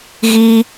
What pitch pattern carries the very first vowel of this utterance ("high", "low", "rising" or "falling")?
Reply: high